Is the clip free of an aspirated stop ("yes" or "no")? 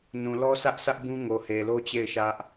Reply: yes